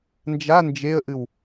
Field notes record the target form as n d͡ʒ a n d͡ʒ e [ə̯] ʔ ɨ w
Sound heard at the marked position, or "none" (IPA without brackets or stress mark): ə̯